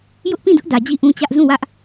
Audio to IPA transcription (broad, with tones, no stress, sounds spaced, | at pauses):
j ʊ˦ ʔ p ĩ˦˨ d ʊ˦ ʔ d ä˨ d͡ʑ i˦˨ ʔ ũ˦ t͡ɕ ä˦ ʔ z ũ˦˨ w ä˦ ʔ